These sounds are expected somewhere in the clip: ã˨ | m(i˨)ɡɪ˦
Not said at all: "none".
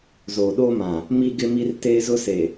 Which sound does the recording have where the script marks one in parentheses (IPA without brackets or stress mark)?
i˦